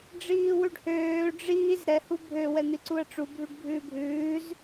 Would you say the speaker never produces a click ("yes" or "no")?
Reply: no